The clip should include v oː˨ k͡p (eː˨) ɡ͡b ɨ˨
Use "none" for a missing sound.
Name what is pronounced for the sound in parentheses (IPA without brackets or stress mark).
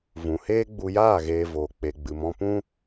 e˨